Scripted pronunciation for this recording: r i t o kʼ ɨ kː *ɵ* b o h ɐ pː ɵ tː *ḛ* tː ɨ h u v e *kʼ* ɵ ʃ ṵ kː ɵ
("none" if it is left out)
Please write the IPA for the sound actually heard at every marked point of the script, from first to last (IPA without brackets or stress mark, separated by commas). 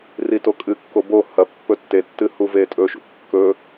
o, e, tʼ